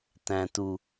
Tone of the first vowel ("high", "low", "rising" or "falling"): low